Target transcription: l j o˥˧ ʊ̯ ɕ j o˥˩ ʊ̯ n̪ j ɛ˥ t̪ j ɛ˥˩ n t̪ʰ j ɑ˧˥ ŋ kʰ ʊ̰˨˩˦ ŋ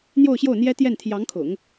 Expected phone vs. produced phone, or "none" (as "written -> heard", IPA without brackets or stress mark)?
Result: l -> n̪